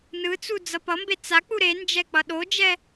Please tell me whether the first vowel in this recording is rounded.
no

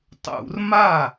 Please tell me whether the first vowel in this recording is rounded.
yes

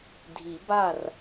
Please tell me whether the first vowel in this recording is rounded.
no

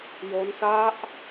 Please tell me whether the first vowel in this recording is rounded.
yes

